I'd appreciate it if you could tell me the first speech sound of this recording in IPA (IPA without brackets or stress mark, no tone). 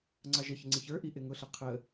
ŋ͡ǀ